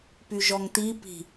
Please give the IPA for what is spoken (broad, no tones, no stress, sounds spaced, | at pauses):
p y ʒ ɔ ŋ t i p i̤